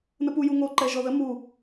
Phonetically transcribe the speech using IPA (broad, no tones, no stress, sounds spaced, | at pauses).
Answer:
n ə p u j u ŋ o ǃ ɛ ʒ ɔ ð ə m u